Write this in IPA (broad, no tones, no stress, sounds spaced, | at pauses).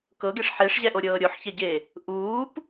k ɤ ɡ e ʂ ħ e ʂ ʑ ɛ ʔ o ɾʲ ɤː ɾʲ o ħ ç ɛ ɟ e | ʔ uː p